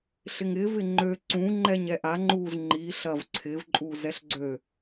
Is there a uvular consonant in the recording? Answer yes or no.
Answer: no